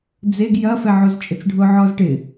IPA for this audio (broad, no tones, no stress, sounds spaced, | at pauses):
d͡z e ɡ j ɐ f ɛ ʕ o z t͡ʃʼ ɪ t͡s ɖʱ ʊ ʕ ɔ z ʈ ɪ